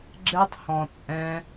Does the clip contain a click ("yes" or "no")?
yes